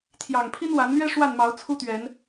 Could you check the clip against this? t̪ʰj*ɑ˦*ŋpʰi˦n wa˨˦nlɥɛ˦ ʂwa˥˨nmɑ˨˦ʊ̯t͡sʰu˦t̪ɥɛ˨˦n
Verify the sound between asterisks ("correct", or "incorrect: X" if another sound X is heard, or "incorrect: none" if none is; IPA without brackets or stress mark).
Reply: incorrect: ɑ˨˩